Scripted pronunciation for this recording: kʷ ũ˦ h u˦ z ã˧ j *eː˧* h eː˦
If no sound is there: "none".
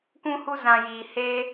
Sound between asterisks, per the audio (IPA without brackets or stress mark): iː˧